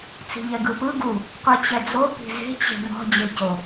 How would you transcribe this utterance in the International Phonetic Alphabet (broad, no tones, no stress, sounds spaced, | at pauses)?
t͡s i̤ ʎ ɛ ɡ ɯ p ɯ ɡ u | qʷ i t͡ɕ ɛ d͡z o p i̤ z e̤ t͡ɕ e̤ m ɔ̤ d͡ʑ e c o